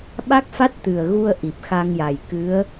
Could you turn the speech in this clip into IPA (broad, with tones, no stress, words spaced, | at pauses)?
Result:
ɓa˦˥k̚fa˦˥t̚t̪ɨ˨˩ə̯ ɣu˧ə̯ʔi˨˩p̚ xa˧ŋja˨˩jkɨ˧˥ə̯